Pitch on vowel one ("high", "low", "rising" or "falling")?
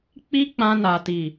high